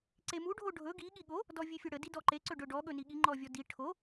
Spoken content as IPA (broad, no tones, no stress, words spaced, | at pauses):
ǀemu ɖʱoɖʱɵ ɡi ɠiɠo | dɔvʲefʲɵɽə didɔǃe ǀɵɖɵɖɔ ɠɵniɠi ŋ͡ǃɔvʲɔdi ʈʰo